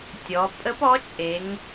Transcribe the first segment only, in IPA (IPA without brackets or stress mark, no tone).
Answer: tʲ